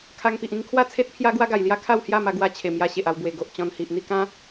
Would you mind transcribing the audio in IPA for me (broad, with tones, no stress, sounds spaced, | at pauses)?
kʰ a˧ ŋ p i˨ ʔ ĩ˥˧ ŋ kʰ w a˥˧ t͡sʰ e˦ t̚ pʰ j a˦ ɡ w a˦ ɡ a˨˩ j l j a˦ kʰ a˥˧ w h j a˥˧ m a˧ ɡ w a˧ t͡ɕʰ e˨˩ m j a˧ ɕ e˨ ʔ a˧ w b w e˨˩ ɡ o˨ ʔ t͡ɕ ɔ̃˧ n h i˨ ʔ n̪ i˥˧ k ã˦